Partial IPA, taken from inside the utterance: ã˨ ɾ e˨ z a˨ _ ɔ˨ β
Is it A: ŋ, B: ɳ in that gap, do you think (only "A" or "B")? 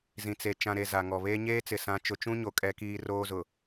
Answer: A